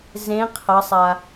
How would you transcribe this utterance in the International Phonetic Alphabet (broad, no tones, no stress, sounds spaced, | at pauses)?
z ẽ qʰ ʌ sˤ a